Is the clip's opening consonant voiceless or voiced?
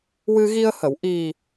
voiced